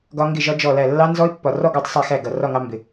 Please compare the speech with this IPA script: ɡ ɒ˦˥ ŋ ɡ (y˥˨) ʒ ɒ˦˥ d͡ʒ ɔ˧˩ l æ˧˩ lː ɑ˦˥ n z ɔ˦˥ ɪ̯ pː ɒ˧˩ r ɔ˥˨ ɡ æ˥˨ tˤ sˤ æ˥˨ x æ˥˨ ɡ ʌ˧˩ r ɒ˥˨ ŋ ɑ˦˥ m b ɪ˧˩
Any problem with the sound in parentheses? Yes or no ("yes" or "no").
yes